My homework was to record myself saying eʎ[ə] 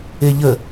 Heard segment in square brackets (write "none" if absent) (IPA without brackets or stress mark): ə